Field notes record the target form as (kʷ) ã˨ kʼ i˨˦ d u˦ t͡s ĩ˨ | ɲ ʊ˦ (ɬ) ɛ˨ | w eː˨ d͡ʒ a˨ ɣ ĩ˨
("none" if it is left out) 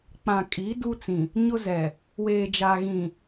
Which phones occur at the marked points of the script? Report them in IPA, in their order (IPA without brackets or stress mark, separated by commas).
k͡p, z